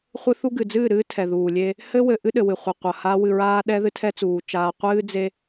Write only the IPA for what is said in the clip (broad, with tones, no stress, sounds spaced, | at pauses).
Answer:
χʷ ɨ˦ θ u˦ ɡ ɨ˨ d͡z ɨː˦˨ ɾ ɨː˦ tʰ ɛ˨ ð uː˨ lʲ e˦ | h ɘ˦ w ɘ˨ ʔ ɨ˦ ɗ ɘ˨ w ɨ˨ χʷ ɐ˨ qʷ ɐ˨ h a˦ w ɨ˨ ɹ aː˦ ɗ ɛ˦ ð ɨ˦ tʰ ɛ˦ t͡s uː˨ t͡ʃ aː˨ qʷ ɨː˦ d͡z e˦